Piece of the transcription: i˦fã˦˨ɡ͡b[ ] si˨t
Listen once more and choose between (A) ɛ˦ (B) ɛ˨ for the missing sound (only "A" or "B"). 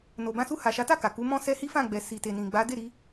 B